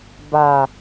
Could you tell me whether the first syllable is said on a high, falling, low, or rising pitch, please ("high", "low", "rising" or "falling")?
low